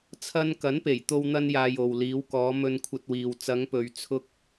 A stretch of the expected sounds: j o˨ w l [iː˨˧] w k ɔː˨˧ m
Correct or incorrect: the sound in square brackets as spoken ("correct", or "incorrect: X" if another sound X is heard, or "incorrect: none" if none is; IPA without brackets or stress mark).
correct